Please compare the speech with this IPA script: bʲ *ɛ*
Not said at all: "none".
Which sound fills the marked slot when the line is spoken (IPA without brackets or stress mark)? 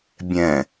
ɛ̃